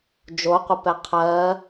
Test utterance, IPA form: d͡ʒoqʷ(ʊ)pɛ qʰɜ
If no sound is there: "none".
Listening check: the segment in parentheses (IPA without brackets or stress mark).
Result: ə